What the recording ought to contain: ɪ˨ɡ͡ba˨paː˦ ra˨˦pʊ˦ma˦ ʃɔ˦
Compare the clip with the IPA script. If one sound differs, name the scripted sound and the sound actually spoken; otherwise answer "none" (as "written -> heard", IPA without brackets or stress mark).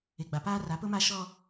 none